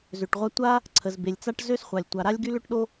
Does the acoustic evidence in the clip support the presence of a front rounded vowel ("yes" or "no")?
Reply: yes